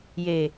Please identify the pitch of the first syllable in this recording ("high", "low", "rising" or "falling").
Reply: low